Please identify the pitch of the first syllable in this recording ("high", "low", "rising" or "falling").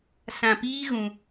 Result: low